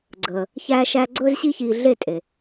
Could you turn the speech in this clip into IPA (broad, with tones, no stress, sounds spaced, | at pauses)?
ɡ͡ǀ əː˩ | ç æː˧ ʃ æː˧ ɡ͡ǀ ɵː˥ z ɕ i˥ ç iː˧ ɮ e˥˩ tʼ e˩